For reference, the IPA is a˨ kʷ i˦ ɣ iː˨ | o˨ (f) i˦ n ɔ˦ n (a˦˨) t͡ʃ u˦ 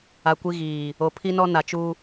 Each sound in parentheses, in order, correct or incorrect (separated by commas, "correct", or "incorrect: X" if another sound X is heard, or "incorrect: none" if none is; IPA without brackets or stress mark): incorrect: pʰ, incorrect: a˨